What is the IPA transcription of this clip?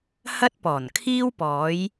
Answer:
h ɐ˥ t̚ p ɔː˨˩ n kʰ iː˥ w p ɔː˨˧ j

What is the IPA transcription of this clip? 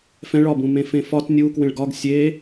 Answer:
f ɛ̃ ɭ ɒ b ũ m ẽ f ẽ f ɒ t nʲ u k w ẽ ɭ ɡ ɒ ɡ sʲ e

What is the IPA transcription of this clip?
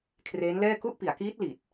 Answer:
kʰ r eː˦˥ n l ɛː˥˩ k u˥˩ ʔ p i˩˦ a̯ k iː˦˥ t̚ l i˨˩ t̚

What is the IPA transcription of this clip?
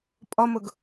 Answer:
pʼ ɔ m ʊ ɡ

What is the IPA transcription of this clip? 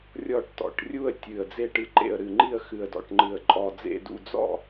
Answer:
rʲ ɔ˦˨ ʈ t ɔ̰˨˩ ʈ rʲ u˦˨ ə̯ tʲ ɨ˨˩ ə̯ d͡z e˦˨ ʈ ɨ˨˩ ǃ ḛ˨˩ ə̯ ɾ ɨ˨˩ ŋ͡ǃ i˦˨ ə̯ x ɨ˨˩ ə̯ d ɔ̰˨˩ ʈ ŋ͡ǃ ɨ˨˩ ə̯ ǃʼ ɔ˨˩ d͡z ḛ˦˨ d ṵ˦˨ d͡z ɔ̰˦˨

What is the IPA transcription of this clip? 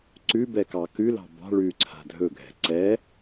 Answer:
ǀ ʉ b ɛ k ɑ k ʉ l ɑ̤ b ɑ̤ ɭ ʉ ǀʰ a̤ dʱ ɵ ɡʱ ɛ̤ ǀ ɛ

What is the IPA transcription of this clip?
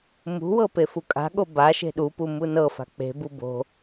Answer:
m ṳ w ɤ p e f u kʼ a̤ ɠ o b a ʃ e̤ ɗ u p u m u n ɤ f a̤ k͡p e̤ b u b o̤

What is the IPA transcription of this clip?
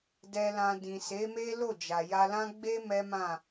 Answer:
d ɛ˧ l ã˧ d ĩ˨ s e˨˦ m e˦ l o˦˨ d͡ʒ a˨ j a˧ l ã˦ ɡ͡b e˦ m ɛ˦ m ã˦˨

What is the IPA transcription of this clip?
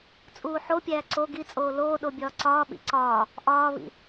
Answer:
t͡sʼ uː ħ o pʲ æː ǀ o ɡ i t͡sʼ oː l oː ɗ o bʲ ɒː ǀ ɒː ɓ ḭ ǀ ɒː | ʔ ɒː β ḭ

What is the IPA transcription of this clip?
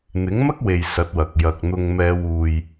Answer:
n̪ ɪ˨˥ ŋ m ɐ˥ k̚ w e˨ j s ɐ˨˥ t̚ w ɐ˨ k̚ j ɐ˨ k̚ n̪ ʊ˧ ŋ m ɛː˨˧ w uː˨ j

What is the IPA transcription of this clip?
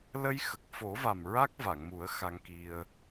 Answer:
l ə˧ j x ə˨˩ k̚ f o˨˩˦ v a˨˩ m ɹ a˦˥ k̚ v a˨˩˨ ŋ m u˨˩˦ ə̯ x a˧ ŋ k i˧ ə̯

